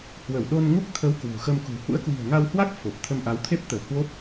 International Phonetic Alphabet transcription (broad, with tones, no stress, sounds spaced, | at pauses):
h w ə˧˩ w ɗ o˧ n ŋ u˦˥ k̚ t̪ʰ ə˨˦ w k w ṳ˨˩ x ə˧ m k ṳ˨˩ h ṵ˧˥ ə̯ k w i̤˨˩ ə̯ ŋ a˧ w h w a˦˥ k̚ f o˨˩ p̚ t̪ʰ ə˧ m ʔ a˨˦ w t̪ʰ e˦˥ p̚ t̪ əː˧˩ h w o˦˥ p̚